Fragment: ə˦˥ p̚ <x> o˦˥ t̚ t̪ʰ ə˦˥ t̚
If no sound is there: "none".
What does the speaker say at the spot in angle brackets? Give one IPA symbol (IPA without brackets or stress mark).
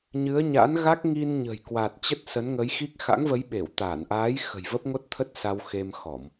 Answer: ŋ